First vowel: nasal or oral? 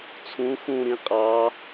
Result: nasal